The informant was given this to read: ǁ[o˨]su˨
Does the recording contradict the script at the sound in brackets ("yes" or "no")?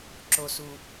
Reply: no